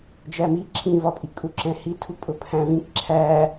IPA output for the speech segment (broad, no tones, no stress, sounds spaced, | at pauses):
d͡ʒ æ m i ǁʰ ĩ v ɒ pʼ i kʼ u ǁ ɛ̃ h i tʰ u pʼ ʊ pʰ æ̃ v ĩ k ǁʰ æ